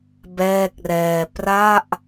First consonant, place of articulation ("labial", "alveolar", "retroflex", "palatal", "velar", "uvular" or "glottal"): labial